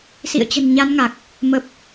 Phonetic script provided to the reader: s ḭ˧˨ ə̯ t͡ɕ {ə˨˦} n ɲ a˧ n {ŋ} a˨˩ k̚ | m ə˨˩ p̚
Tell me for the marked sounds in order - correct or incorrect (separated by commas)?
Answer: incorrect, correct